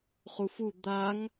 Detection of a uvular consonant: present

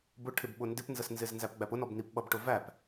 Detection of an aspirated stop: present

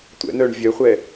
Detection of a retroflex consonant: present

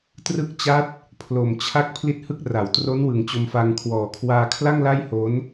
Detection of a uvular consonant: absent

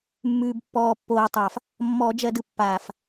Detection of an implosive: absent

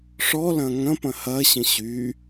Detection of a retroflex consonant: present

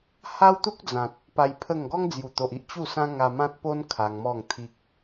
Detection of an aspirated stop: present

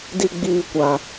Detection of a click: absent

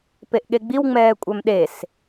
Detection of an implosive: present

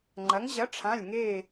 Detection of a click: present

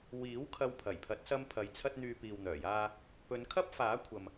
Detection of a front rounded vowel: present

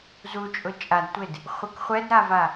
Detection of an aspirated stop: absent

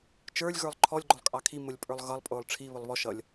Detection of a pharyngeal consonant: absent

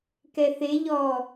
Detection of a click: absent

